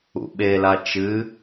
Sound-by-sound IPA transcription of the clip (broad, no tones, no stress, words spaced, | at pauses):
ṵɓela t͡ʃɨ